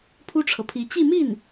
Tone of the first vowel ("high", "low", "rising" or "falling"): high